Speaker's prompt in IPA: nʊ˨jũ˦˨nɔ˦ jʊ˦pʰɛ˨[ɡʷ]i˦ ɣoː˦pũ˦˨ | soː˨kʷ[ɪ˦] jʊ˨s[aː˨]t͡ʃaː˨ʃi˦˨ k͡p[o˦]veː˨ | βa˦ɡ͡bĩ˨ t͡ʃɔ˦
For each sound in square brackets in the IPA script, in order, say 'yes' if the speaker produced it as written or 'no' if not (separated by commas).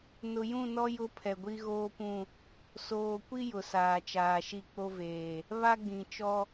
yes, no, yes, yes